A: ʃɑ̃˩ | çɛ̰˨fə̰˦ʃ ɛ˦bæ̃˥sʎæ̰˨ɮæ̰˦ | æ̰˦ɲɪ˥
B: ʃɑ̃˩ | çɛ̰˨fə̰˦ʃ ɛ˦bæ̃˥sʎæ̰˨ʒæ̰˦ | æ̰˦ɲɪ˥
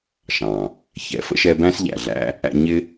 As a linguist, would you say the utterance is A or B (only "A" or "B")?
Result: A